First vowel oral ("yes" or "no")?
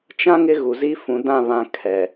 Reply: no